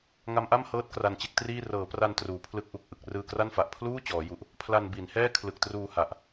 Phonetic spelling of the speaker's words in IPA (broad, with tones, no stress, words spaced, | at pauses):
ŋa˦˥mʔa˥˩mhɤː˦˥t̚ kra˧nt͡ɕe˦˥k̚triː˥˩ rɤː˩˦pra˧n truː˨˩pʰlɯ˦˥k̚ʔu˨˩k̚ ʔɯ˨˩k̚ rɯː˧kra˥˩nfa˨˩ʔ pʰluː˥˩ t͡ɕɔː˩˦ju˨˩ʔ | pʰla˧n bi˩˦nhɛː˥˩ kʰlɯ˨˩k̚truː˧ ha˨˩ʔ